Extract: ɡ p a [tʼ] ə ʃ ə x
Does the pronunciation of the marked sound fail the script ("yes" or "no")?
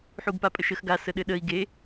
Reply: yes